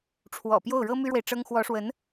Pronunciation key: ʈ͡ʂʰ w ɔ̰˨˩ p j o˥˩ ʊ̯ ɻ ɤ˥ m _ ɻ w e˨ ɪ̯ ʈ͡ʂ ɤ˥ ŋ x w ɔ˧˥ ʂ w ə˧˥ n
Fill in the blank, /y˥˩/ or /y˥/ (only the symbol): y˥